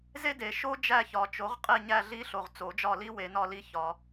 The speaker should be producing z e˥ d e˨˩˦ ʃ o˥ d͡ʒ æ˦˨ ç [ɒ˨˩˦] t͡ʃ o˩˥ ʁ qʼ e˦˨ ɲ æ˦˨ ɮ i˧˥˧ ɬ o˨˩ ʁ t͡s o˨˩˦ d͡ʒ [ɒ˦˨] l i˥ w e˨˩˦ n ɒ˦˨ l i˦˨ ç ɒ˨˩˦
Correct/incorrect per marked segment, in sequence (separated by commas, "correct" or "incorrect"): correct, correct